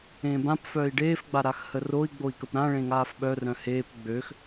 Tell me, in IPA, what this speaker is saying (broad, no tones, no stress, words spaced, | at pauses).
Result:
ẽːbãpfœːi̯ ɖeːfɡ͡ba ɾaxhəroi̯ɡ͡boi̯ kəpɾãɭẽ ŋaːfɓœrœ̃ heːp ɡ͡bøx